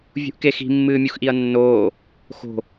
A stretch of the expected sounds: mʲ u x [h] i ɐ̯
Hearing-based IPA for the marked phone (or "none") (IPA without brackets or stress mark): ʔ